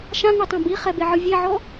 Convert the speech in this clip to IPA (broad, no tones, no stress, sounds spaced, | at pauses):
ʃ ã ŋ ɯ tˤ õ b i χ ɛ b e ʕ ɯ vʲ e ʕ ɔ